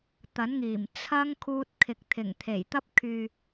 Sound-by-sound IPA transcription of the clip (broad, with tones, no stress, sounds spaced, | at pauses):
t̪ ɐ˨˥ n ŋ iː˨˩ m t͡sʰ ɐ˧ ŋ kʰ uː˧ t̚ kʰ ɪ˨ k̚ t̪ʰ ɪ˨˩ ŋ t̪ʰ e˨˩ j t̪ ɐ˥ p̚ kʰ yː˨